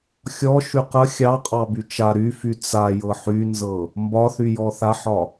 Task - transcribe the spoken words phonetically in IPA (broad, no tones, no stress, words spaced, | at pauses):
xʲɔ ʃyqə xʲɑ qʼɑbyt͡ʃa ɾyfy t͡sa jɤħynzɤ | mbɒθy jɔθaħɒ